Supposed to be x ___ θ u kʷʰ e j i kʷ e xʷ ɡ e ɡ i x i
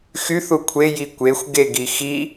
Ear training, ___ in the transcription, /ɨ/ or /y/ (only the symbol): y